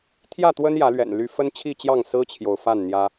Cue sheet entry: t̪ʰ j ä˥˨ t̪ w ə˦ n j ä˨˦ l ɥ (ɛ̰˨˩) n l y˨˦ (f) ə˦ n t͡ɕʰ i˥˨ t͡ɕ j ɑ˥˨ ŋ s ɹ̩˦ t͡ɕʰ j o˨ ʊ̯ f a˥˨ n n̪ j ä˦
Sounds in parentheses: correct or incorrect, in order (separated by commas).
correct, correct